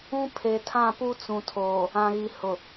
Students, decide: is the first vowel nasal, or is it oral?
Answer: nasal